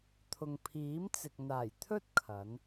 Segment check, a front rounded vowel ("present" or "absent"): absent